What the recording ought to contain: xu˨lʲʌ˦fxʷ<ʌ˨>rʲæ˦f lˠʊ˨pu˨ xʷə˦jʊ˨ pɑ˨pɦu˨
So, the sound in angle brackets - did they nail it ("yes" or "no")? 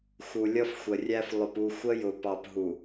no